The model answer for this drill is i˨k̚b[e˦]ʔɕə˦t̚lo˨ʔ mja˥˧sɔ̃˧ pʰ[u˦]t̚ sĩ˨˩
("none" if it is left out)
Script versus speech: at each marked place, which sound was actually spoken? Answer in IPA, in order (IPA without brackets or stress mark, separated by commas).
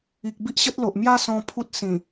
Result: i˦, u˦